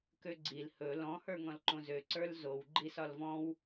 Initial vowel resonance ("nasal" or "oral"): oral